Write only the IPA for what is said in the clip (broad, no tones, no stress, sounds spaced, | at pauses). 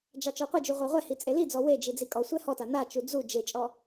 d͡ʒ ɑ t͡ʃ ɔ qʷ e d͡ʒ u ʁʷ ɑ ʁʷ ɛ h i t͡sʼ e l i d͡z ɔ w e d͡ʒ i d͡z i kʼ ɔ sʷ ɛ h ɔ t a n a t͡ʃ u d͡z u d͡ʒ e t͡ʃʼ ɔ